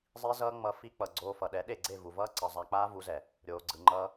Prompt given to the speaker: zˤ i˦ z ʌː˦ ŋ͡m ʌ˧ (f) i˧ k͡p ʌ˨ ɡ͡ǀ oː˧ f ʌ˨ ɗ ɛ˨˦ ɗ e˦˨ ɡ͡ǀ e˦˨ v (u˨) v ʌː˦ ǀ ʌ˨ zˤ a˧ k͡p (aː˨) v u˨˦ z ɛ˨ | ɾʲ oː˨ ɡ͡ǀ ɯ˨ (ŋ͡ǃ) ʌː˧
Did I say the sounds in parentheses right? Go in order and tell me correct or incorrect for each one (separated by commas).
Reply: correct, correct, incorrect, correct